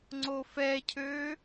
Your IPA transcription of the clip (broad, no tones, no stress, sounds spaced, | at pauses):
ŋ͡ǀ o f ɛ cʰ øː